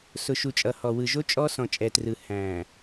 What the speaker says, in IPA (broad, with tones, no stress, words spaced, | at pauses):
sʊ˨ʃu˨ t͡ʃʼʌ˨hɔ˨ wɯ˨ʒo˦ t͡ʃʼɔ˦sɔ̃˨ t͡ʃʼɛ˨trɯ˨ hæ̃˨